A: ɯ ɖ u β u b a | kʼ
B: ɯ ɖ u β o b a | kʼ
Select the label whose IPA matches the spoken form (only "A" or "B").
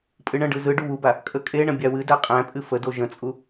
A